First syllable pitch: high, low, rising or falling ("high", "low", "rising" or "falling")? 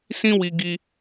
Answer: high